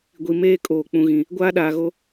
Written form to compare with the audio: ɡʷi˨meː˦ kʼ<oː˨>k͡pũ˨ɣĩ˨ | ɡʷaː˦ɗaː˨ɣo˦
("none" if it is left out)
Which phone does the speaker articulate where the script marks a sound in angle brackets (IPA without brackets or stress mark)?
oː˨